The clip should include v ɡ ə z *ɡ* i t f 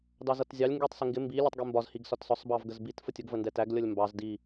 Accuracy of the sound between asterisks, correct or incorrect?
incorrect